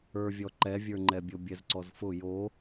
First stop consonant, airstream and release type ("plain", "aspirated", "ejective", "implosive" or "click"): click